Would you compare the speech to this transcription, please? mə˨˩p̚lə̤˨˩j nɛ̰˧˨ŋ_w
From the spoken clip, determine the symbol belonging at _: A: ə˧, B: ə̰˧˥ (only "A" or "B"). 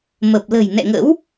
B